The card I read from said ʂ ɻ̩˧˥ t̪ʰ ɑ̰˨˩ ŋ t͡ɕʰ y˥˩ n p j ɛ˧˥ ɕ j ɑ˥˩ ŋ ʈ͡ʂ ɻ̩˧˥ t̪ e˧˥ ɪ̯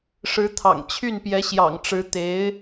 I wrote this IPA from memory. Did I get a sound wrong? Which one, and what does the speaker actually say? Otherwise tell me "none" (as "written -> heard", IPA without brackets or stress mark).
ɑ˥˩ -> ɑ̰˨˩